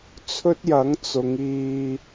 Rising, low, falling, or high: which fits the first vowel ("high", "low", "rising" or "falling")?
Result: high